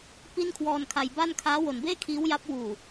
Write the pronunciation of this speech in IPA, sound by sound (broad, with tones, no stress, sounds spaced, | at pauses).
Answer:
p i˥˩ n kʰ w ɔː˧ n kʰ a˧ j b a˥˩ n kʰ aː˦˥ w o˨˩ n b eː˥˩ kʰ iː˦˥ w j a˦˥ p̚ w uː˨˩